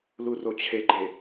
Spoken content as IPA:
l u r o t͡ɕʰ e ɡ͡ǃ e

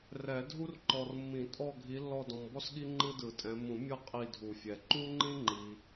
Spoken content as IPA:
r ɛ˨˩˦ dʱ u˥ r ǃ ɔ˨ r mː ĩ˨˩˦ tʼ ɔ˦˨ ɡʱ i˨˦ lː ɔ˦˨ d ɔ̃˨ m b ɔ˥ s ɠ i˥ ŋ͡ǃ ɯ˥ d ɯ˨˩˦ tʼ ɛ̃˨˦ m ũ˨˩˦ mʲ ɤ˦˨ qʼ i˦˨ dʱ u˨˩˦ fʲ ɛ˨ ǃ u˥ ŋ͡ǃ ĩ˥ ŋ͡ǃ i˨

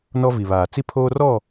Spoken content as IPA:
n ɔ˦ v i˨ β aː˨ t͡s i˦ pʰ oː˦ r ɔ˦˨

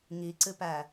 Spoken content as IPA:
ŋ i ǀ ɨ p æ

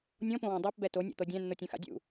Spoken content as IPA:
nʲ ɔ̃ p õ w ɔ̃ dˤ æ p b ɛ t o nʲ o̰ t̪ ɤ dʲ æ̃ nː o tʲ ũ x a̰ dʲ ṵ

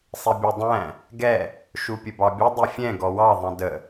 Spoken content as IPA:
sˤ i bʲ ʊ dˤ æ̃ | ɡ ɛ | ʃ u pʲ ə b ɑ bʲ ʌ dˤ i fʲ ɛ̃ ɡ ɔ w ɑ ðˤ ɛ̃ d ə

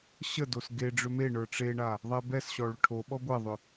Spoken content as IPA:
ɕ ə d o s ɡ e ɖ͡ʐ ʏ m e ɳ ə˞ ʈ͡ʂ e ɳ a | ðˤ ɛ b ɛ s ɕ ɔ ɭ ʏ ʈʰ o ɓ ɔ ɡʷ ɛ ðˤ ʏ

